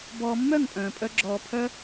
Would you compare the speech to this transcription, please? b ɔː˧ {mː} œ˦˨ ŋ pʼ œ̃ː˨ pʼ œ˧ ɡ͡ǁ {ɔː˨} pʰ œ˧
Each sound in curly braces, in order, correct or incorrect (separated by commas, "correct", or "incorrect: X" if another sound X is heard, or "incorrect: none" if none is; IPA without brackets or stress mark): correct, correct